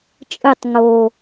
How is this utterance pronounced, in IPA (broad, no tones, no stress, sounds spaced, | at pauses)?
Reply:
t͡ʃʼ ɯ tˤ ŋ o